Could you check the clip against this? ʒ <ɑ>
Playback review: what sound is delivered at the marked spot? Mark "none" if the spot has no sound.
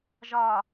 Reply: ɒ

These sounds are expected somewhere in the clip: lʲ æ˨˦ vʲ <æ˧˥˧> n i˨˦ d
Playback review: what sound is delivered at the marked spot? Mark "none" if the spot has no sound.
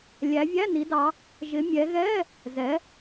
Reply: æ˧˥˧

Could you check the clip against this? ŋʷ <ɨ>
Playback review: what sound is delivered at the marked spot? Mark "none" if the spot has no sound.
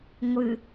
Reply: ɨ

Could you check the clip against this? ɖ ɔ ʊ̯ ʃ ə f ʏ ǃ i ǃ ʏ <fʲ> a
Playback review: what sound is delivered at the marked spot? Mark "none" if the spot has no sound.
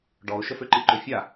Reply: fʲ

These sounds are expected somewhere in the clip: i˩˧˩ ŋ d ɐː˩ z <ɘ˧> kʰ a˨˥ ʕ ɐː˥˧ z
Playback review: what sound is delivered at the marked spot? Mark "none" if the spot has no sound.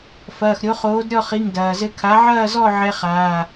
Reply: ɘ˧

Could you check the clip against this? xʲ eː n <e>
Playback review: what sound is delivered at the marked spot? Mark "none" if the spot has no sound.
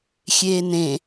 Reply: ẽ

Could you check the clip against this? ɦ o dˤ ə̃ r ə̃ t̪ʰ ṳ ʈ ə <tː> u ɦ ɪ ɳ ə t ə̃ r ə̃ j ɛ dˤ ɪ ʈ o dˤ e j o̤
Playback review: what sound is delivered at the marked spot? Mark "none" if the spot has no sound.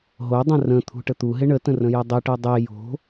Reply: t̪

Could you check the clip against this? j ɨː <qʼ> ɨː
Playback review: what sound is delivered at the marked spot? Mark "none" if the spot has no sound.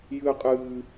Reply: qʼ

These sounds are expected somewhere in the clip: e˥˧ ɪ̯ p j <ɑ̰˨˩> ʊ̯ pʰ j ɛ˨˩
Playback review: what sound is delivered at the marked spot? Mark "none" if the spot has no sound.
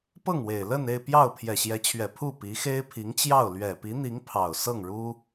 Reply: ɑ˥˩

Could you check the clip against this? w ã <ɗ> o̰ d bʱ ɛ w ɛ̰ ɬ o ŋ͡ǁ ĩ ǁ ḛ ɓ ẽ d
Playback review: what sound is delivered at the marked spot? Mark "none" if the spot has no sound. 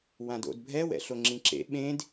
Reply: d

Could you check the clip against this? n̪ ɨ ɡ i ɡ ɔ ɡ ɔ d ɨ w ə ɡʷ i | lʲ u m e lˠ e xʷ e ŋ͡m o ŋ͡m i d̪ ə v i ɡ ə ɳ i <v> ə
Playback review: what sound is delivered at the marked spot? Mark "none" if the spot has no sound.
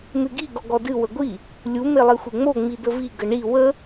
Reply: w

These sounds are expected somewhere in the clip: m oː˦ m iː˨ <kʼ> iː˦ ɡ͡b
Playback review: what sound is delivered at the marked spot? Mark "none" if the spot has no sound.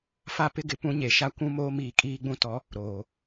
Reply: kʼ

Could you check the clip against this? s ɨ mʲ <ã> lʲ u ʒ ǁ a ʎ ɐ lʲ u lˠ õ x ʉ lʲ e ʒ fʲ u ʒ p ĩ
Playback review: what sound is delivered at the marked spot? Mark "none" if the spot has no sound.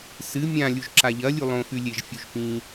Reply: ã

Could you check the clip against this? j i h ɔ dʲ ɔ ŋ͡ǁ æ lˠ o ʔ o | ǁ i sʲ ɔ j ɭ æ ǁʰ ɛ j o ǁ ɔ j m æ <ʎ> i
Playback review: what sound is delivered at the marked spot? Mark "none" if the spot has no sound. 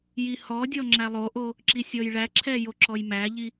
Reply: ʎ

